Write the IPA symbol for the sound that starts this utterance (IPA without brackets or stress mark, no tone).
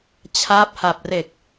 t͡ɕʰ